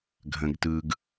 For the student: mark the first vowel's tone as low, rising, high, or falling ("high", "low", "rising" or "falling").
low